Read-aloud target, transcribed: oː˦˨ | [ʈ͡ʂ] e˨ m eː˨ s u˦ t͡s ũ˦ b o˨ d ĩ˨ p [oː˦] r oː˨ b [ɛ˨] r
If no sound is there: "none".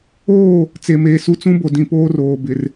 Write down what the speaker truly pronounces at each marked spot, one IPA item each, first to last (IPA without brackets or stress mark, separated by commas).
t͡s, oː˦, ɪ˨